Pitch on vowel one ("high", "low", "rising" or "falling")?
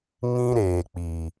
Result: high